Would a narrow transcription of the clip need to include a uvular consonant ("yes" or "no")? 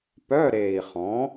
yes